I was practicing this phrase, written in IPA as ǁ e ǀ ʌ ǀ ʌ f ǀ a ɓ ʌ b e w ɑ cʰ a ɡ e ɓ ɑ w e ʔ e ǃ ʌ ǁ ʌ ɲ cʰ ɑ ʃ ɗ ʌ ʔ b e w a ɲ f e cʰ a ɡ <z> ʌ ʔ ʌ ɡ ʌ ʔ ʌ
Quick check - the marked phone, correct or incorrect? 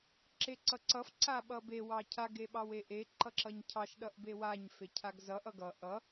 correct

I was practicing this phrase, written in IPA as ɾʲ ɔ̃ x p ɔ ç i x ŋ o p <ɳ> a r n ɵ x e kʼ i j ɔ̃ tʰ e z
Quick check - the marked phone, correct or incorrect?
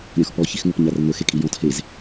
incorrect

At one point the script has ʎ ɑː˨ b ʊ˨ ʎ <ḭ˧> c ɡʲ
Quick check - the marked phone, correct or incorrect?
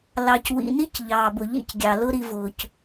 incorrect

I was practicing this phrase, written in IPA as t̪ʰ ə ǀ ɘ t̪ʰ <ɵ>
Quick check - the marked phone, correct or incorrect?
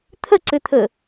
incorrect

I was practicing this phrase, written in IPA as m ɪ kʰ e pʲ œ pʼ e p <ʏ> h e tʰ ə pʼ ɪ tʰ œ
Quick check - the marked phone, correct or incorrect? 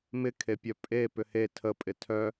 correct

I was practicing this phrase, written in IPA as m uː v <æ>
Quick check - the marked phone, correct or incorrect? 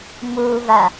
incorrect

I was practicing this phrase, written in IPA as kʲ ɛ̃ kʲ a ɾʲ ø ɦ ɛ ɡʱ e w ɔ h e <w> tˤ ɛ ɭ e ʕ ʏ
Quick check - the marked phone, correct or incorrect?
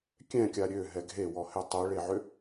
incorrect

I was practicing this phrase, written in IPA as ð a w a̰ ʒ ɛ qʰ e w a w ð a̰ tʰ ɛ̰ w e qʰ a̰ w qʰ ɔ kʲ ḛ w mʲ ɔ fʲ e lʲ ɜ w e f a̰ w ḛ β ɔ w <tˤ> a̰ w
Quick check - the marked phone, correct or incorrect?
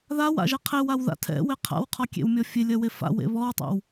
correct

